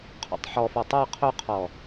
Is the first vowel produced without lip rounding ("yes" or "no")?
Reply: no